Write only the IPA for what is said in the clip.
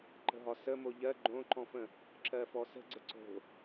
ǃ ə̤ ɦ ɒ s ə m o ʎ ɜ ɡ͡ǃ õ ǃ ɔ̃ f ə̃ | ǁ ɜ f ɔ s ə̤ ɡ͡ǀ ə ǀ o̤

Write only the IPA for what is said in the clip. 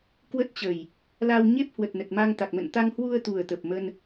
k w ə˦˥ t̚ t͡ɕ ə˨˩ j | l a˧ w ɲ e˦˥ p̚ h w ə˨˩ t̚ n ə˨˩ t̚ m a˧ ŋ t̪ a˨˩ k̚ m ə̰˧˨ n t̪ a˧ ŋ h w u˧ ə̯ t̪ u˨˩ ə̯ t̪ ə˨˩ p̚ m ə˧ n

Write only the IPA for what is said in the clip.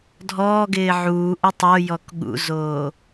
dʱ ɔː ɡ ɪː ʕ uː ʔ o tˤ o j ɔ k ɠ ṵ z oː

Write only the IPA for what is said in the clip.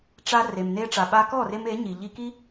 ʈ͡ʂ a˧ r e˨ m n e˦ ʈ͡ʂ a˨ ɓ a˧ k ɔ˦˨ r e˧ m e˨˦ ɲ i˨ ʎ i˧ k i˦

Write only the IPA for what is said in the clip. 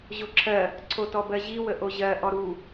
ʑ o ǁʰ ɜ | ǀʰ o t ɔ b ɜ ʑ i w ə ʔ o ʑ ɜ ʔ ɔ ɾ u

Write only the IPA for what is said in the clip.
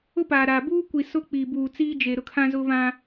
ʊ˦ p aː˨ ɾ aː˨ b uː˦ kʷ i˨ s ʊ˦ k͡p i˨ b uː˨ t͡s iː˦ d͡ʒ e˨ ɾ ʊ˦ kʰ ã˦ z ʊ˦ β ã˦

